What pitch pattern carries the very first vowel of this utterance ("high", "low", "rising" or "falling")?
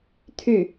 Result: falling